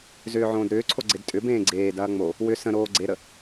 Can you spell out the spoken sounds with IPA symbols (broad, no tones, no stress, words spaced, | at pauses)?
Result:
zʏːʕõːdɾʏːǀʰo ɡ͡ǀedtʼʏbẽː ɡ͡ǀeːdɐː ŋ͡mo | wʏ sə̃ɾoː ɡ͡ǀeɾə